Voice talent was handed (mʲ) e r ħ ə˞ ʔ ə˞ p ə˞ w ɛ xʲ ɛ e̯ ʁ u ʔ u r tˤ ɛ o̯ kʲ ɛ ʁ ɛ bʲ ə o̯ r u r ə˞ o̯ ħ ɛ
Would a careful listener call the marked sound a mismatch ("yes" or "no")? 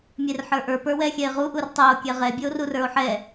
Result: no